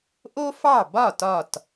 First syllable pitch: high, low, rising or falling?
high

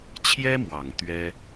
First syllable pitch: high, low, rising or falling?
high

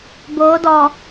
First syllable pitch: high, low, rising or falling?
rising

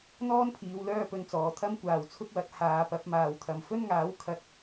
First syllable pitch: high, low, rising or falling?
high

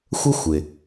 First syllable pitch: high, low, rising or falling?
high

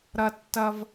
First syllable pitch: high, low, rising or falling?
high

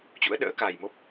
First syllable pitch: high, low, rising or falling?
rising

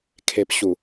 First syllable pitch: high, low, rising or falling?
low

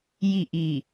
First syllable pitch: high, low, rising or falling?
falling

